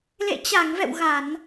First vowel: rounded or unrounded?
unrounded